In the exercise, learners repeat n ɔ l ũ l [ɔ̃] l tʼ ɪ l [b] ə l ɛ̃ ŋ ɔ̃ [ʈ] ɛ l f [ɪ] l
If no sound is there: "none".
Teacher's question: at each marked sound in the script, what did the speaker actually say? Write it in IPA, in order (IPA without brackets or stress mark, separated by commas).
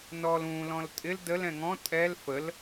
ɔ̃, d, tʼ, ə